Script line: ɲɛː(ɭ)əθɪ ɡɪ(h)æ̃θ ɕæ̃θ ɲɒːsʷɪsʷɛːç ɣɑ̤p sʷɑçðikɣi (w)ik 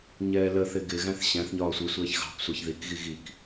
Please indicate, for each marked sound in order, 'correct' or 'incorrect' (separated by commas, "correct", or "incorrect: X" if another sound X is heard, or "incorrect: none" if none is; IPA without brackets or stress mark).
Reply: incorrect: l, incorrect: ɣ, incorrect: ɣ